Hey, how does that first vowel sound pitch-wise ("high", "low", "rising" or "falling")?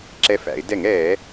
rising